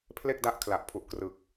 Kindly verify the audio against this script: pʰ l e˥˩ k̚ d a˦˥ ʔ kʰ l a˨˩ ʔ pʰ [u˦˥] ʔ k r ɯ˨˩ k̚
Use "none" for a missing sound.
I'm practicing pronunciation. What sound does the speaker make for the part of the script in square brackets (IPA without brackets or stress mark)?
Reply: u˨˩